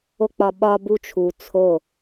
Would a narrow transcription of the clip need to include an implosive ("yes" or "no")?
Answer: yes